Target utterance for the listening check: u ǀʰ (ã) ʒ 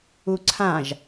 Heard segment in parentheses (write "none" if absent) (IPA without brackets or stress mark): ã